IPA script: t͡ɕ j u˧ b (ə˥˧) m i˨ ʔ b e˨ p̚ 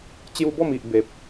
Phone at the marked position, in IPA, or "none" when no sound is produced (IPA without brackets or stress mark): ɔ˥˧